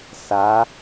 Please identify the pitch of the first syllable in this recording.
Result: rising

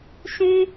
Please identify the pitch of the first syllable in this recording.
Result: high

